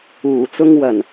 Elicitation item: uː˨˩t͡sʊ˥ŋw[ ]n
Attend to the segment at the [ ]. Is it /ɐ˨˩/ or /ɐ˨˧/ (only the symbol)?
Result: ɐ˨˩